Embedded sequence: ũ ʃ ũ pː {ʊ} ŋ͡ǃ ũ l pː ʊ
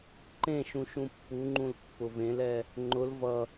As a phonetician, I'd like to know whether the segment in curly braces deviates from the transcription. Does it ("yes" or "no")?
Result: yes